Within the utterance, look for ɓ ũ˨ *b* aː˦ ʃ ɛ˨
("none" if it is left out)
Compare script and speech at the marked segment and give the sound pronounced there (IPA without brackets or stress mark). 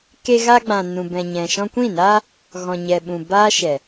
b